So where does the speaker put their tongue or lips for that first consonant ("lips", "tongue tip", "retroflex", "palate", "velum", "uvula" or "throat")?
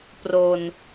lips